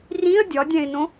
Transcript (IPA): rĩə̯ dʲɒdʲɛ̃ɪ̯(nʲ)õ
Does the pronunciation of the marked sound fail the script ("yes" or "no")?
yes